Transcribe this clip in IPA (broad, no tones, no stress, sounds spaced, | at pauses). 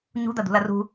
ɲ ṳ d̪ ɐ d̪ ṳ l ɐ r ṳ